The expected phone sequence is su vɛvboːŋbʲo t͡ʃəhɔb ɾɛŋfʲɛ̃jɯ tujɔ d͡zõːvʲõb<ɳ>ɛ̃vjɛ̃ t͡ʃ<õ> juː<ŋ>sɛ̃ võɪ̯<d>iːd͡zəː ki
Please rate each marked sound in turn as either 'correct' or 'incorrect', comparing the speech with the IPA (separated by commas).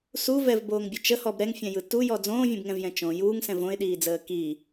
incorrect, correct, correct, incorrect